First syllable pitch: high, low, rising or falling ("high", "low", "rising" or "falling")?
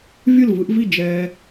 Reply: falling